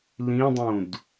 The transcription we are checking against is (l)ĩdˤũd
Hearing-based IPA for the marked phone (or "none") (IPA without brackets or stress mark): l